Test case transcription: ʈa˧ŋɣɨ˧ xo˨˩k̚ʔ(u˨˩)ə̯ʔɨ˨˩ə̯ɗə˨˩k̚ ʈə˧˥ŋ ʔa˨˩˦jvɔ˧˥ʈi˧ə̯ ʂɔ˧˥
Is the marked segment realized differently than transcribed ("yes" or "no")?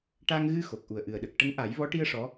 no